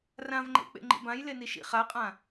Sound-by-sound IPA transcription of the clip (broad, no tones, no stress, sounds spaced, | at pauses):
r ã v ŋ͡ǃ ḛ k͡p ḛ ŋ͡ǃ ḭ b ã j l e n i ʃ ḭ χ a qʼ ã